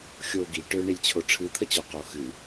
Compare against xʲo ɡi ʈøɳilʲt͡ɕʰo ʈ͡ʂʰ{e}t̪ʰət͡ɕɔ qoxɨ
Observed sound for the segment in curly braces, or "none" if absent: ɨ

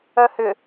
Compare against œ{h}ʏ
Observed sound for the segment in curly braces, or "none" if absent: h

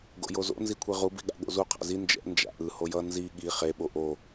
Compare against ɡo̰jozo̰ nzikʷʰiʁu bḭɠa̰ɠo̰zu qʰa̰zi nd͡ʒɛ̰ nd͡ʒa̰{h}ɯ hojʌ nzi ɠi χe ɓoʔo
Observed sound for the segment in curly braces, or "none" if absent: ʔ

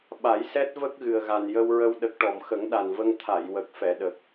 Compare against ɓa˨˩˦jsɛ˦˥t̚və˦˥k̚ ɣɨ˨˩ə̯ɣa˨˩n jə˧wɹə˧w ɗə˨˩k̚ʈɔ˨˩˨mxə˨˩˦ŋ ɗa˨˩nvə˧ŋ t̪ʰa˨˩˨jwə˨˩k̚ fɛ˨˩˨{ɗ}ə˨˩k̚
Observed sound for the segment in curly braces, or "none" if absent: ɗ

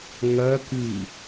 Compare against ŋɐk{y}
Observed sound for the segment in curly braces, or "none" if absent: ɨ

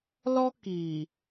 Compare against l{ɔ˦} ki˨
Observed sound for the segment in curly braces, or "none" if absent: ɔ˦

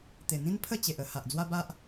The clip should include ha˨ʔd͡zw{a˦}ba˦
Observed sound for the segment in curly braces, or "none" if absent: a˦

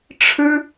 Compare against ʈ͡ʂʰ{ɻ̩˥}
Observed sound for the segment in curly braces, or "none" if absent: ɻ̩˥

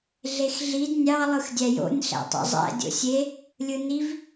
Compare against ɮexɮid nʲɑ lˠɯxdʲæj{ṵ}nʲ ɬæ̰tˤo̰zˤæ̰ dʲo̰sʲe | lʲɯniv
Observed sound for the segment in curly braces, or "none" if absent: o̰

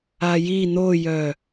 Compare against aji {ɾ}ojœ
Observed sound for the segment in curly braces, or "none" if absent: n̪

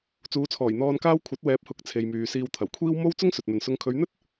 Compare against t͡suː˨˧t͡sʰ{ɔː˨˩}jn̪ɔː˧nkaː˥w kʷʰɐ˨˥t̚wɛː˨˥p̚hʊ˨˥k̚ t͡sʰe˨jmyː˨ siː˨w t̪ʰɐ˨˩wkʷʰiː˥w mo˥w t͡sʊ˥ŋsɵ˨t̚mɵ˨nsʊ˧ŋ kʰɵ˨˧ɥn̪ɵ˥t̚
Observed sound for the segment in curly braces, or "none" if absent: ɔː˨˩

